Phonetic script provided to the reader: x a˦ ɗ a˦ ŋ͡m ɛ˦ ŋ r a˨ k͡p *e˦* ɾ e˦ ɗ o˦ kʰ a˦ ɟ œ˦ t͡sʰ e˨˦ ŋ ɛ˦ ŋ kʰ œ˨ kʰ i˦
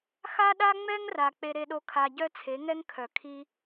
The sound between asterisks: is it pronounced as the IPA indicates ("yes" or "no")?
yes